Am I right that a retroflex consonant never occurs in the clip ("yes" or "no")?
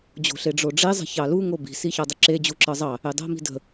no